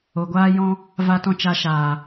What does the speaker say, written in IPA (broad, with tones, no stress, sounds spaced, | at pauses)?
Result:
o˨ ɡʷ aː˦ j ɔ̃˦ | v a˧ t ɔ̃˧ t͡ʃ a˧ ʃ aː˨